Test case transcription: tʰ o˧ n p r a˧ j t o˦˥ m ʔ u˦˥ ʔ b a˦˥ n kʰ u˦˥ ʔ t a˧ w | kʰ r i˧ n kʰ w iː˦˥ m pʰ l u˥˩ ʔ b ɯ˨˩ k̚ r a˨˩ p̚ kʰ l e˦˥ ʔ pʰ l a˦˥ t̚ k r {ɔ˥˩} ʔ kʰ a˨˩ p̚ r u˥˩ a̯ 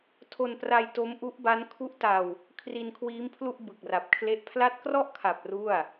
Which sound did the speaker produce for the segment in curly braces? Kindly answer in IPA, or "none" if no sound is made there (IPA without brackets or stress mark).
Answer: ɔ˥˩